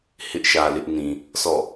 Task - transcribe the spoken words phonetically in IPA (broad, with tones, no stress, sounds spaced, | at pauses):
h ɪ˦ ʔ ʃ ä˨ l ɪ˦ ʔ n ĩ˨ | sʰ ɔ̰˦˨